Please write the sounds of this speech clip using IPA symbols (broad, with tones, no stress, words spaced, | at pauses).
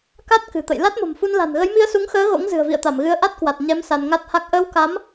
ka˦˥t̚ kɨ̤˨˩t̪ə̰˧˨j la˦˥t̚mo̤˨˩mfu˧nla̤˨˩n ɣə˨˦jmi˧ə̯su˨˦ŋxəː˨˦ ɣo̰˧˥ŋ zɨ̤˨˩ə̯vḭ˧˨ə̯t̪a˧˩mɣɨ˨˦ə̯ ʔa˦˥t̚kwa˨˩t̚ ɲɛ˨˦m sa˧nŋa˦˥t̚ha˦˥k̚ ʔəː˧wka˨˦m